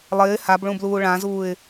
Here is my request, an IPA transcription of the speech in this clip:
lˠ ɪː h a b ɭ ũ b l uː ɭ ã z uː ɪ̯

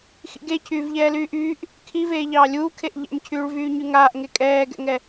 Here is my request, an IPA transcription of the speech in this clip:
x ḭ ɡ e cʰ yː v ʎ ɛː l yː ʔ yː ʔ | kʰ i v eː ʎ ɑː lʲ uː kʰ e ʔ ʎ ɛ̰ m cʰ yː ɭ v yː ɲ y ŋ aː ʔ ŋ e kʼ ɛː ɡ ɛ̰ ŋ ɛ

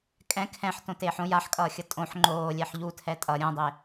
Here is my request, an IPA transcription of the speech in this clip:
kʼ ɛ̃ kʰ ɛ̃ ħ t õ t eː ħ õ j a ħ kʼ ʌː xʲ ʌ tʼ õ ħ ŋ͡ǃ oː lʲ ɛ ħ ʎ u tʰ ɛ tʼ ʌ ɾʲ õ dˤ e

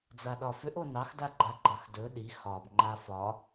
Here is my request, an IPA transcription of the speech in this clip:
d͡z a ɗ ɒ f ʏ ʔ o n ɑ x d a ɡ͡ǃ a ɡ͡ǃ ɑ x d ɵ ɗ i x ɒ b ŋ͡ǃ a f ɒ

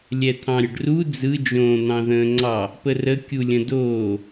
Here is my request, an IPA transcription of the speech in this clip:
lʲ ɛ t̪ʰ ɑ̃ ɾʲ ə ɖ r u d͡z ɯ d͡ʒ õː n̪ ɑ̃ ð ə̃ː ŋ͡ǀ ɑ | p ə r ə kʲ u lʲ ə̃ d oː

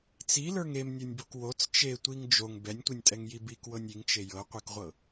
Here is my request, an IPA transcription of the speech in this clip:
t͡s i l ə˞ ŋ e m nʲ ɤ nʲ b o k w o t͡s t͡ʃ e tʷ i ŋ d͡ʒ o ŋ b ɛ nʲ tʷ i nʲ tʼ ɛ ŋ j i b i k w ɤ nʲ i ŋ t͡ʃ e j ɤ qʷ i k ʁʷ ɤ

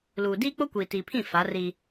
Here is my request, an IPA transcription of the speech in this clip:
l uː˨ d iː˦ k͡p o˦ kʷ iː˨ t iː˨ pʰ ĩ˦˨ f a˨˦ r i˦

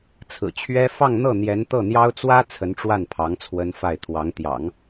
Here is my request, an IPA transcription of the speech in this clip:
t͡sʰ ɹ̩˨˩ t͡ɕʰ ɥ ɛ˥ f ɑ˥˧ ŋ n̪ ɤ˥˩ n̪ j ɛ˧˥ n t̪ ɤ˥˩ n̪ j ɑ˥ ʊ̯ t͡s w ä˥ t͡sʰ ə˧˥ n ʈ͡ʂ w a˥˩ n pʰ ɑ˧˥ ŋ t͡sʰ w ə˥ n f a˥˩ ɪ̯ t̪ʰ w ɑ˧˥ ŋ t̪ j ɑ̰˨˩˦ ŋ

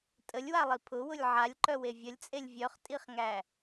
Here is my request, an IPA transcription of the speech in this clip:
tʼ ə lʲ w a lˠ i pʰ ʊ w ʊ lʲ ʕ a lʲ ǃ œ w e vʲ ə lʲ t͡sʼ e lʲ vʲ œ χ tʼ i χ ŋ æ

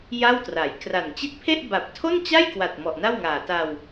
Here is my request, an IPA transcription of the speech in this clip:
j a˥˩ w t r a˩˦ j k r a˨˩ n t͡ɕ i˦˥ t̚ pʰ e˥˩ ʔ b a˨˩ p̚ tʰ o˥˩ n t͡ɕ a˥˩ j k w a˨˩ t̚ m ɔ˨˩ ʔ n a˥˩ w ŋ aː˨˩ t a˧ w

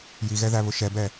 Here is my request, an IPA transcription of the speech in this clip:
j i ɣ ɛ ð æ β ʊ ʃ ɛ b ɛ

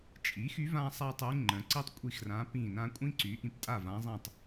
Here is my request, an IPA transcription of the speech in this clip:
t͡ʃʼ i˩˥ x y˧˥ v ã˥ sˤ a˥ tˤ y˧˥ ŋ͡ǃ ə̃˩˥ ǀ i˥ tˤ kʷʼ i˦˨ x r ã˧˥ p ĩ˦˨ n ã˥ kʷʼ ĩ˥ ǀ y˩˥ ʔ ĩ˩˥ p tʼ a˦˨ v ã˧˥ zˤ ĩ˦˨ tˤ

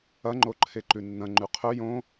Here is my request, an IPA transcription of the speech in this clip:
ɐ ŋ͡ǃ o ǃʰ e ǃ ʉ nː ɐ̃ ŋ͡ǃ ʉ qʰ ɵ j õ

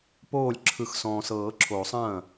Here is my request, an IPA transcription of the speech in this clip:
p oː˥˩ lʲ ǁʰ ɯ˨˩˦ x s ɔ̃ː˨ s ɤː˨˩˦ ǁʰ oː˨˩˦ sˤ ɐ̃ː˥˩

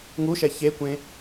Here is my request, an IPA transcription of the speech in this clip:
ŋ u ʃ ɛ ç e kʷ ẽ

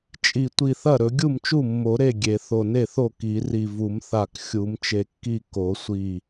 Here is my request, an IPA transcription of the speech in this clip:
t͡ʃʼ i˧˩ tʷ i˧˩ θ ɐ˥˩ ɾ ɵ˨˩˦ ɡʲ u˥˩ m t͡ʃ u˥˩ mː o˨˩˦ ɾ e˥˩ ɡʲ e˨˩˦ θ o˧˩ n e˥˩ θ o˥˩ k i˨˩˦ r i˧˩ v u˨˩˦ m θ a˧˩ k xʲ u˨˩˦ m t͡ʃ e˧˩ kː i˥˩ k o˨˩˦ sʷ i˧˩

